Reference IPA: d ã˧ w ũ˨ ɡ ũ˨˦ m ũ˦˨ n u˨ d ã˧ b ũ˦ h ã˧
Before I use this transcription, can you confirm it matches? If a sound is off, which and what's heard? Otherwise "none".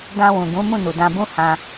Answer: none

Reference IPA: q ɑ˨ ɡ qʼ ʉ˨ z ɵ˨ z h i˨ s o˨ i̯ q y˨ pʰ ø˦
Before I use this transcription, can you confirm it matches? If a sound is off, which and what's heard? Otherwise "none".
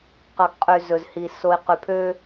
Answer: none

